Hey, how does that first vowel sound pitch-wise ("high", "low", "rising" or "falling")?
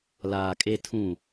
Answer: low